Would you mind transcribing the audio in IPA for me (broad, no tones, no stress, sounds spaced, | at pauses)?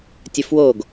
tʲ ə f w o ɡ